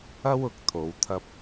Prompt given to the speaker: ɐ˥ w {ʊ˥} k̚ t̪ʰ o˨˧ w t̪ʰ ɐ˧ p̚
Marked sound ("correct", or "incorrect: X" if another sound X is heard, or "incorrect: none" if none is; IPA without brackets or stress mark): incorrect: ʊ˨˥